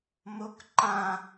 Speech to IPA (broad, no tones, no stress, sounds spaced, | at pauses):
m o k ǃ ã